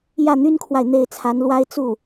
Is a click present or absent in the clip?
absent